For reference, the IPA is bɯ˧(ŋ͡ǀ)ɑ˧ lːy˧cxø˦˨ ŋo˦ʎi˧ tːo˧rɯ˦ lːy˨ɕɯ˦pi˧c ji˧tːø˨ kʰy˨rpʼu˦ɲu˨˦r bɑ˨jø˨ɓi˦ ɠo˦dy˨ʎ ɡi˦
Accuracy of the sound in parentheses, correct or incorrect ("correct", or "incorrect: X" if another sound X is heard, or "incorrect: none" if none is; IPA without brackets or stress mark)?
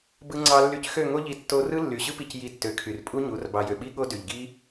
correct